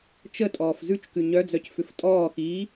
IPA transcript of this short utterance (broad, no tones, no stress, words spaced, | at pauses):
t͡ʃətʼɔːf zʉt͡ʃkʉ ɲœd͡zœc fʏftʼɔːxiː